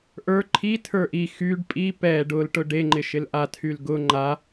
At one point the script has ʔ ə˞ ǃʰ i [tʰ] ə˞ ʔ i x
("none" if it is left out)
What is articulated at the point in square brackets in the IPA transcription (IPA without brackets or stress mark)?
tʰ